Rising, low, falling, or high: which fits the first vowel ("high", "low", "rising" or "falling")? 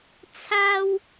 high